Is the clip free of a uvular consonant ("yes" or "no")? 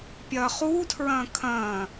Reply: no